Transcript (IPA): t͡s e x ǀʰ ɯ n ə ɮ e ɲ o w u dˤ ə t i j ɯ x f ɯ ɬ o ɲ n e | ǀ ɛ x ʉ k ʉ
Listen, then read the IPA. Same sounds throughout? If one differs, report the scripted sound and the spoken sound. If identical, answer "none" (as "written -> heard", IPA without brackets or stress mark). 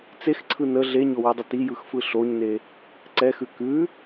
none